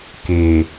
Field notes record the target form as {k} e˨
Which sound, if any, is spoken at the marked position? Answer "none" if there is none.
k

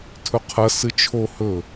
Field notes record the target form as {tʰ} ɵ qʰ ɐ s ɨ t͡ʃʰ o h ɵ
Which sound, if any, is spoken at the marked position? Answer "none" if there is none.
tʰ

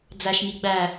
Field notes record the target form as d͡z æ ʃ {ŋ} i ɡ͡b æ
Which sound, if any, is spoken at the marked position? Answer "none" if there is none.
ŋ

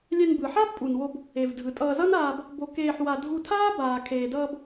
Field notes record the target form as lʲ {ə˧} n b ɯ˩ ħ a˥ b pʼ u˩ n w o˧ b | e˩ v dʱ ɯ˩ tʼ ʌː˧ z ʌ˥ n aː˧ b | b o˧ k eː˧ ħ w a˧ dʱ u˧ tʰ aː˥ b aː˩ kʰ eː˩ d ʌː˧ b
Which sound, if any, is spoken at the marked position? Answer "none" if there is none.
ɛ˧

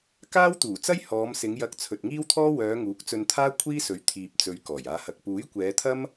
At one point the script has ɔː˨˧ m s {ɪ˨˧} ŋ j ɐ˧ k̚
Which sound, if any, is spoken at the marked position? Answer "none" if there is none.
ɪ˨˧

